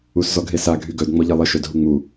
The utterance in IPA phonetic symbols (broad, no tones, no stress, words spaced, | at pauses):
uszɔɡɦesa ɡʱyɡœd ŋ͡mɔʎelˠə ʃœdɦuŋ͡mu